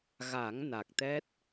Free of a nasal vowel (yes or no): yes